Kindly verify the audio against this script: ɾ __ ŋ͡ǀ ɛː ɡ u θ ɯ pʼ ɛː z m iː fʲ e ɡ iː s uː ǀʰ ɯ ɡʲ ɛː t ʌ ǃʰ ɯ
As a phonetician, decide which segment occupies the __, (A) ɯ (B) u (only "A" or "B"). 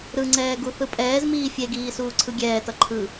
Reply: A